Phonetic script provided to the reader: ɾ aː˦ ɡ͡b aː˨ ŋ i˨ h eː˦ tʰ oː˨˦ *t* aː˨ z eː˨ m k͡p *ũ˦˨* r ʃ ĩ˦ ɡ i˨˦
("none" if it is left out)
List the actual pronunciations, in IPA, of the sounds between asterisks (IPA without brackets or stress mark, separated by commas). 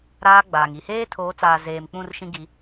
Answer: t͡s, ũ˦˨